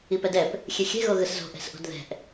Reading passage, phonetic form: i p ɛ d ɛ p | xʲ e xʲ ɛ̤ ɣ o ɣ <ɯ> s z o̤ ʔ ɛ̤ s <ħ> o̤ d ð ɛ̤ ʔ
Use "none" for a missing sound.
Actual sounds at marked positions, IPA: ɯ, ʔ

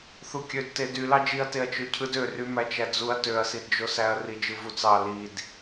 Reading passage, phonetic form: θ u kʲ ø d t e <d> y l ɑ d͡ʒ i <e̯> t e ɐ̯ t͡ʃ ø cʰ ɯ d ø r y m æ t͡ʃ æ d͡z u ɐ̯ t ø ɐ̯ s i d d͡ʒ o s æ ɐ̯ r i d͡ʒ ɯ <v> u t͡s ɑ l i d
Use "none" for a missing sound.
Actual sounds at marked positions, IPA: d, ɐ̯, v

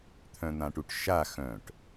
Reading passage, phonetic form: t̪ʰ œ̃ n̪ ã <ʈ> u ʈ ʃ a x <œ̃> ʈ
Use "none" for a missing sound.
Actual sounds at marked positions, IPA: ʈ, œ̃

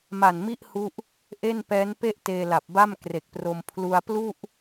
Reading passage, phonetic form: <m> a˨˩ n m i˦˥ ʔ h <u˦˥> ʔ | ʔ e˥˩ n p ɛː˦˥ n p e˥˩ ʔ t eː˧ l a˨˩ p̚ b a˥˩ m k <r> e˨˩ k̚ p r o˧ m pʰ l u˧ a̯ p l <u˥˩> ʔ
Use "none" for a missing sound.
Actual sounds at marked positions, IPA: m, u˦˥, r, u˥˩

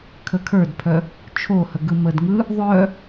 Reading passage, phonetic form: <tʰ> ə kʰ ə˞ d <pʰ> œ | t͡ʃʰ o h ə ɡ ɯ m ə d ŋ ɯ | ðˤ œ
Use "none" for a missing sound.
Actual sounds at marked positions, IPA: kʰ, pʰ

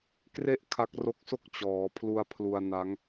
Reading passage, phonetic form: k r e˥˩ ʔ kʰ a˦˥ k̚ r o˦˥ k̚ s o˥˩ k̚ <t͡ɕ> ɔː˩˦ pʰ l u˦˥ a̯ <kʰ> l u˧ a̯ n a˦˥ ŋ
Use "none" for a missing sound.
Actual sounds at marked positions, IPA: t͡ɕ, pʰ

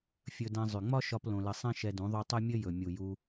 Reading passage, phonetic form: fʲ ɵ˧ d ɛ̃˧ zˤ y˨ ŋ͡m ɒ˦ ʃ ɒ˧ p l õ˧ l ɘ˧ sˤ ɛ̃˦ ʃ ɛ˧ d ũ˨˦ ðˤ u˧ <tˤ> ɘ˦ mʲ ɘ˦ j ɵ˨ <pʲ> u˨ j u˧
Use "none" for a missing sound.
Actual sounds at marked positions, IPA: tˤ, mʲ

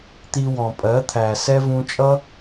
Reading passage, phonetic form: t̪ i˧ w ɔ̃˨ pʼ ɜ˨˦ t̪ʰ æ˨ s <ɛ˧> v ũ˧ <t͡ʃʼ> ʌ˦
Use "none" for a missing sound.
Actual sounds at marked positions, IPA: ɛ˧, t͡ʃʼ

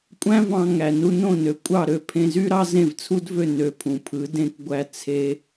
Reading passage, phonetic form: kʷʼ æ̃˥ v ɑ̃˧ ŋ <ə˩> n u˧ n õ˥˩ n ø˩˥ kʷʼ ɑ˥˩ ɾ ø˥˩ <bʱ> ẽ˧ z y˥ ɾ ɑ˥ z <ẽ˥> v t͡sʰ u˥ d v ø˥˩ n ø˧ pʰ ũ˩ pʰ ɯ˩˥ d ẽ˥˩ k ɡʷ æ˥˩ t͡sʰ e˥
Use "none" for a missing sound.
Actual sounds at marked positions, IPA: æ˩, pʰ, ẽ˥˩

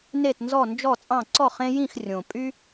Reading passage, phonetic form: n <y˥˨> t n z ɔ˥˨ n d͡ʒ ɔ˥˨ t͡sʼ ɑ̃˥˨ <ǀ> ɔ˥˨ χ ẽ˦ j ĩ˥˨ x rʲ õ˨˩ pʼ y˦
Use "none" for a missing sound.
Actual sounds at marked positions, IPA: e˥˨, ǀ

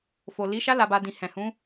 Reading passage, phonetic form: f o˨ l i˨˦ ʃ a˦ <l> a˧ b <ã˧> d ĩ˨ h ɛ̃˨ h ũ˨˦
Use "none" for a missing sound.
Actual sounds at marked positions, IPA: l, a˧

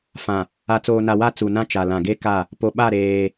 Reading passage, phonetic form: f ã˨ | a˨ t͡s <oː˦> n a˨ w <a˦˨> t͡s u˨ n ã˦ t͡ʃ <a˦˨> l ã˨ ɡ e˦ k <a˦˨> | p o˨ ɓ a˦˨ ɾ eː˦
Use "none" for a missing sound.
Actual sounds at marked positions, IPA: oː˨, a˦˨, a˨, a˦˨

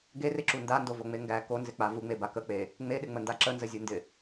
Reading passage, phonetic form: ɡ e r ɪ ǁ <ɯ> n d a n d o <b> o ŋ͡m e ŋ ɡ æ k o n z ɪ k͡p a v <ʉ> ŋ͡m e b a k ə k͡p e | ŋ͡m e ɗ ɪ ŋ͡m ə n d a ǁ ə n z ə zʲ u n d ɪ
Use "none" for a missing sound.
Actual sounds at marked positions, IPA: u, v, u

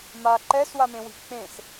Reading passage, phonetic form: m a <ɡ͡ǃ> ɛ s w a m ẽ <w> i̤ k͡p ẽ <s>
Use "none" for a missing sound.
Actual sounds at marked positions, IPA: ǃ, w, s

